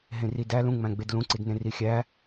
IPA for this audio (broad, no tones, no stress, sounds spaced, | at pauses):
ɦ ẽ r i d æ l ũ ŋ͡m æ̃ ɡ͡b e d l ũ ǀ i d n ẽ r i xʲ æ